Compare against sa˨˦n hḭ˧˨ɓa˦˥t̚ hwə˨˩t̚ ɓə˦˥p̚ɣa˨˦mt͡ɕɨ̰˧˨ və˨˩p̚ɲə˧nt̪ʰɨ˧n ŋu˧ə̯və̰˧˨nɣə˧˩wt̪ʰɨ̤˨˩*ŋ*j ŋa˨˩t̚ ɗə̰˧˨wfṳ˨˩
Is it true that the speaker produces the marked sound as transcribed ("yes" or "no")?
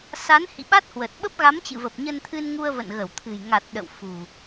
no